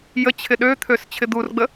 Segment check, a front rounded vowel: present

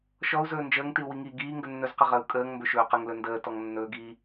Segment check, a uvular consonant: present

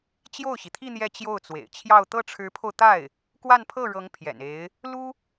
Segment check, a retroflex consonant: present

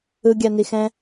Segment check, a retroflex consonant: absent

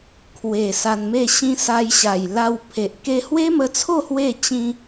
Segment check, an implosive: absent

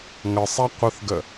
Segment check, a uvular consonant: present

